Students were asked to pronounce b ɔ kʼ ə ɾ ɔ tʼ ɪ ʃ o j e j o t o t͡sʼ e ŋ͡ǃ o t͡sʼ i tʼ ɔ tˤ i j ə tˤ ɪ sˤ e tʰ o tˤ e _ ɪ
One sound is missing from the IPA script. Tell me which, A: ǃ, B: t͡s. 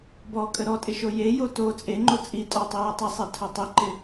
A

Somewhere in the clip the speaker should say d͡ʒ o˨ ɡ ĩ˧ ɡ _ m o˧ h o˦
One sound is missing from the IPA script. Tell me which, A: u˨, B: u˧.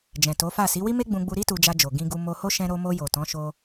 B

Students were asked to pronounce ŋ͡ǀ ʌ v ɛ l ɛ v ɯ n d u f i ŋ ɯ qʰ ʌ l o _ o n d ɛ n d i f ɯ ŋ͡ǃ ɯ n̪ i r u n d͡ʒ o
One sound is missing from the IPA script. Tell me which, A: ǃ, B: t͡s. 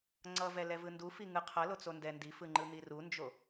B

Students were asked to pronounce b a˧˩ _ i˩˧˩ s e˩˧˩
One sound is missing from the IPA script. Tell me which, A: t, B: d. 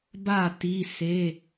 A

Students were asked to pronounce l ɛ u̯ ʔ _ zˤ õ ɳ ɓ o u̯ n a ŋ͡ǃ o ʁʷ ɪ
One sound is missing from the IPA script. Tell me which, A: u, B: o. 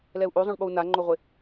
B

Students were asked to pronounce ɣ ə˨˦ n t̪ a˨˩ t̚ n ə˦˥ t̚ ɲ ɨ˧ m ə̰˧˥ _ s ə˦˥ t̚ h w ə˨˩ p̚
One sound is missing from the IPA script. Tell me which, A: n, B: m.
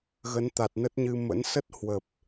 A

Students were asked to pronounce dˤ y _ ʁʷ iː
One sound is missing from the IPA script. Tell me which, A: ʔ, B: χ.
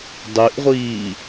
A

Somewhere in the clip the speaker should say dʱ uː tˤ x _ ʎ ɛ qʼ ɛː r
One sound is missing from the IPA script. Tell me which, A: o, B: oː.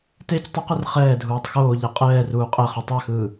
B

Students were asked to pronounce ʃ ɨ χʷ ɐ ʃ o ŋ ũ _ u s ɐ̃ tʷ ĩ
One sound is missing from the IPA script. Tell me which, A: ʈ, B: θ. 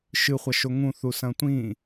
B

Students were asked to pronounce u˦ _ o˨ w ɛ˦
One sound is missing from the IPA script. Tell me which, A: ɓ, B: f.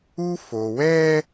B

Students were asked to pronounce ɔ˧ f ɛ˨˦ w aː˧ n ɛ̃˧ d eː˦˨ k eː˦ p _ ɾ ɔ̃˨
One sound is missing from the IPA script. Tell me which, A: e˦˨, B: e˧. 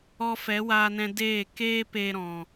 B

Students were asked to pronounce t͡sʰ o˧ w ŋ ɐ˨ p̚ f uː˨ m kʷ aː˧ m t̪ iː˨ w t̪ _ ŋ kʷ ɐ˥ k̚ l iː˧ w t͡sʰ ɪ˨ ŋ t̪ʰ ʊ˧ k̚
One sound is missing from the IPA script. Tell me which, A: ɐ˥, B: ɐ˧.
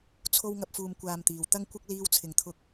A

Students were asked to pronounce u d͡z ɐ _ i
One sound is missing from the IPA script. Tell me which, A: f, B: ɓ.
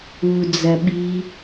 B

